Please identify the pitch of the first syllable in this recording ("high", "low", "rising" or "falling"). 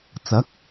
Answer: rising